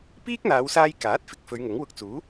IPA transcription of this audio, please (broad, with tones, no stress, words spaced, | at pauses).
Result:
piː˥k̚n̪aː˨˧wsaː˧j kaː˨˥t̚fɪ˨k̚ fɵ˨˧ɥŋʊ˨˥ŋ wʊ˧k̚t͡suː˨˥